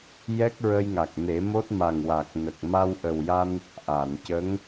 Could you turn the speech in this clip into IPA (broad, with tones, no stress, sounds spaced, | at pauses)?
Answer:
j ɛ˦˥ k̚ ɹ ə˧ j ŋ a˨˩ k̚ n e˨˩˦ m o˦˥ t̚ m a˨˩ ŋ w a˨˩ k̚ n ə˨˩ k̚ m a˧ w ʔ ə˨˩ w j a˧ n | ʔ a˨˩˨ n c ə˧˥ ŋ